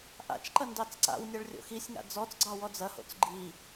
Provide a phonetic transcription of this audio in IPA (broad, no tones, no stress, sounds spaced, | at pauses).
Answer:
ʔ a̰ t͡ʃ ǃ ɐ n d ɑ t͡s ǀ a̰ w nʲ a ɭ rʲ o̰ x i sʲ ŋ a̰ d͡z ɔ t͡s ɡ͡ǀ ɑ w ɔ d͡z ɐ h o̰ t͡s ɡ͡ǃ i